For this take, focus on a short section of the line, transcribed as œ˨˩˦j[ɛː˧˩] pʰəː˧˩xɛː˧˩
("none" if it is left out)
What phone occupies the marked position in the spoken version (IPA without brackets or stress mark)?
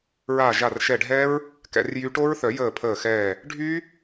əː˧˩